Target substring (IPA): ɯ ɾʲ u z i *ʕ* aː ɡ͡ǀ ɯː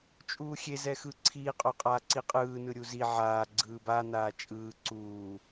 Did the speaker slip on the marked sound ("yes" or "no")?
no